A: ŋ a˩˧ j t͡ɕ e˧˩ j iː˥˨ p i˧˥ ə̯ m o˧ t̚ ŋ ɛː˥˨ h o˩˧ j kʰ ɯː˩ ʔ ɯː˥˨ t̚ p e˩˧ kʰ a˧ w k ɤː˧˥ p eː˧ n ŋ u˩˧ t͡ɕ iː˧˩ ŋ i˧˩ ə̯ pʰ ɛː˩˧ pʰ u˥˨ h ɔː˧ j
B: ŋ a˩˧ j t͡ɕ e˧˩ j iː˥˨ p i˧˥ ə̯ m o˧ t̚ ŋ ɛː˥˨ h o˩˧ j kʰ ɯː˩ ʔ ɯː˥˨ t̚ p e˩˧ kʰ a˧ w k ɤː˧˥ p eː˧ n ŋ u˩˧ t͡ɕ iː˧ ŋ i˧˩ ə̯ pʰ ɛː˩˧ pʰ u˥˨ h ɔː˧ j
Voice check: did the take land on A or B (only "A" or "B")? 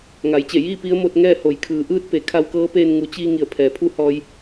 B